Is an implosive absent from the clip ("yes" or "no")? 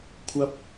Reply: yes